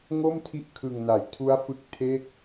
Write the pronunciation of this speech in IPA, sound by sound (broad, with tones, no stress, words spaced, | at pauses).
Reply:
ŋo˥˩mtʰi˦˥ʔ kʰɯ˧ŋna˨˩jtʰu˦˥a̯ fɯ˦˥k̚ tʰe˥˩k̚